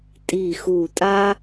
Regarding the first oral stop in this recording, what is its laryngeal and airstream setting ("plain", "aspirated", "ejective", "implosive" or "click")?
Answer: ejective